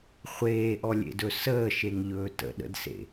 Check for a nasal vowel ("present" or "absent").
absent